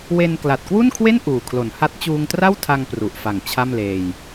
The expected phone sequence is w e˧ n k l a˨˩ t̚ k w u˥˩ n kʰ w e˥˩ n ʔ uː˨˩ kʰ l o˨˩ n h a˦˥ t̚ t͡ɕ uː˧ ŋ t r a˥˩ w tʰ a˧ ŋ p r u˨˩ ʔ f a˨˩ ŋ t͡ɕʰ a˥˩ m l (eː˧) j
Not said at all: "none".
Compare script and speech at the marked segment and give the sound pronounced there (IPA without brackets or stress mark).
eː˧